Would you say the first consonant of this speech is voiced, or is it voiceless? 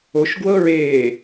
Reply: voiceless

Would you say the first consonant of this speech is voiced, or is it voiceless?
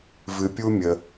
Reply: voiced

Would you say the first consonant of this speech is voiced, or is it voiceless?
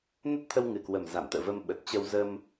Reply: voiced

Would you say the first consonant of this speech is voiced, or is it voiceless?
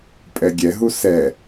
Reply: voiceless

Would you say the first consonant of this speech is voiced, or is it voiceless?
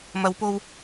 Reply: voiced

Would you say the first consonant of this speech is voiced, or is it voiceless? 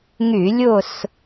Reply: voiced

